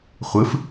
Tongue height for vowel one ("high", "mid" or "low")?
high